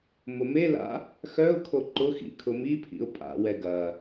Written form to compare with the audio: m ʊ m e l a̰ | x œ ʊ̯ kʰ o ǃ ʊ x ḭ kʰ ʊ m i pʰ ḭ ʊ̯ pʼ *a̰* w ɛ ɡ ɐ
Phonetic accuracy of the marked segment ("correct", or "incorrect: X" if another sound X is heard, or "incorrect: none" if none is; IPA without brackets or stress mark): correct